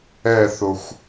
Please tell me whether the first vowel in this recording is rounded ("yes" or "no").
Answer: no